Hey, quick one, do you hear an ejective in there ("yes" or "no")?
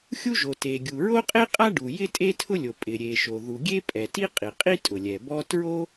yes